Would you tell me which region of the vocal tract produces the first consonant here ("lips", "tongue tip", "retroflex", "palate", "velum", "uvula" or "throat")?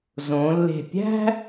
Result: tongue tip